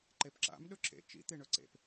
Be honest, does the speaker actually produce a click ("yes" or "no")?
yes